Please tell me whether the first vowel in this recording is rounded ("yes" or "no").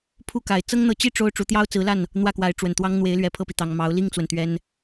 yes